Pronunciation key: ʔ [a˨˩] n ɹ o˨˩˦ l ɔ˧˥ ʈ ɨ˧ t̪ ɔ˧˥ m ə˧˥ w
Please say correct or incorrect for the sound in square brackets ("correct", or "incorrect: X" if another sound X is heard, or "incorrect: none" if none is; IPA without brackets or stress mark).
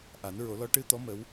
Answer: incorrect: a˨˩˦